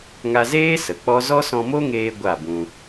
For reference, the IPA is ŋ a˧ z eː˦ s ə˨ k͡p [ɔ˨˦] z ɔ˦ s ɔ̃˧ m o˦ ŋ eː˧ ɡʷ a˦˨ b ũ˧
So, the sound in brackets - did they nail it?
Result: no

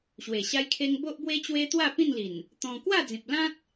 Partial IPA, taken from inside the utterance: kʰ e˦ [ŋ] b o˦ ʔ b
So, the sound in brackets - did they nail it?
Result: yes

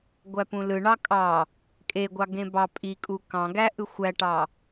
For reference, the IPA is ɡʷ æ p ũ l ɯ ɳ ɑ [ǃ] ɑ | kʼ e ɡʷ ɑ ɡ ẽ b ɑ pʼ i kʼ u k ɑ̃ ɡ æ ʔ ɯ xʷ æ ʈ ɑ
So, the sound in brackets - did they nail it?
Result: no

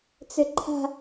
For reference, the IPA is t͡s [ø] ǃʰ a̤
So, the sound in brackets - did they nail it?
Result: no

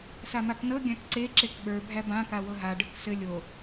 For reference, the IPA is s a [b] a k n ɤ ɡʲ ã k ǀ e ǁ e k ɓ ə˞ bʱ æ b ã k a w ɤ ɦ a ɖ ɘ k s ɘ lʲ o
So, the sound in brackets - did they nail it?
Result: no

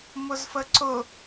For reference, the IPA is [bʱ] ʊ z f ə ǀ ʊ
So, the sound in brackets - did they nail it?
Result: no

